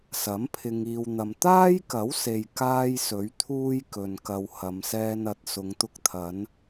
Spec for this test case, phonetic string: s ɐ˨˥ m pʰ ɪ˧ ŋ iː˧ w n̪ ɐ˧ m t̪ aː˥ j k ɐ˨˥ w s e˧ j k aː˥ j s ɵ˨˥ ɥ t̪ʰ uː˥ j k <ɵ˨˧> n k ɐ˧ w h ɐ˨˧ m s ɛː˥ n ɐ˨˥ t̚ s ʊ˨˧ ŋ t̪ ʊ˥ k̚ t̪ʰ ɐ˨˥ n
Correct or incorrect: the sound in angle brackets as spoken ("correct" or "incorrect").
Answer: incorrect